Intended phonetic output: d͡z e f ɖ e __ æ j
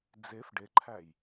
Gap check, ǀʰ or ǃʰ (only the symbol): ǃʰ